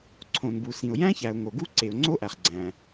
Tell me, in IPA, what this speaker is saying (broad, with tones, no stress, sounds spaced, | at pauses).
ǀʰ õ˩ n b u˩ s ĩ˩ ʊ̯ j æ̃˥ ç æ˩ ʊ̯ ŋ o˩ ɡ u˥ ǀ e˩ ʊ̯ ŋ͡ǀ o˥ ʔ æ˩ χ ɡ͡ǀ æ̃˩